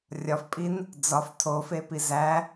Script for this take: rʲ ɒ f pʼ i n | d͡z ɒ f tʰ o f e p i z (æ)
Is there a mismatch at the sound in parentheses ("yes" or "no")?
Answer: no